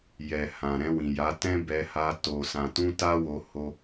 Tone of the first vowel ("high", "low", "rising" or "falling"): low